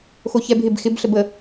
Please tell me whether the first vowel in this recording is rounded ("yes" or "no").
yes